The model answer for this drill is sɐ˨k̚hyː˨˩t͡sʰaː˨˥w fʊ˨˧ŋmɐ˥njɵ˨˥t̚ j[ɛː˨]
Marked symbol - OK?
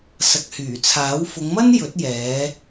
no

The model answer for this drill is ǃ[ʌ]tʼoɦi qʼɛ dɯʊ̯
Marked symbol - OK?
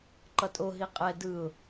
yes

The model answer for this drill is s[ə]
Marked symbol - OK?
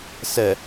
yes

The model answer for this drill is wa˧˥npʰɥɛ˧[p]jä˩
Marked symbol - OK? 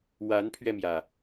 no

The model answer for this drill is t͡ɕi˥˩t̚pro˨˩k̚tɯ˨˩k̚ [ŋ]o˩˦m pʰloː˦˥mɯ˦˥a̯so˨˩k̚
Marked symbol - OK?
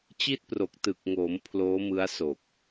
yes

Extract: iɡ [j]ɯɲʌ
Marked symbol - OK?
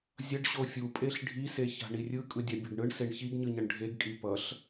no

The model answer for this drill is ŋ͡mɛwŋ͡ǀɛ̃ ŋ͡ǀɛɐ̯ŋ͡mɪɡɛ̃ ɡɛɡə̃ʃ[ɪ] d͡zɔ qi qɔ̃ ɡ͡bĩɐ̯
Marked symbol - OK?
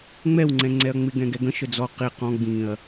no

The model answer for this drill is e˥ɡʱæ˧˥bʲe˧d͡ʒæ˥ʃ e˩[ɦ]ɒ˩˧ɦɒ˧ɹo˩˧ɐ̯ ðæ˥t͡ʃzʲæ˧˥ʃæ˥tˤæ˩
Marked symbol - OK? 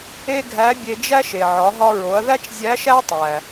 no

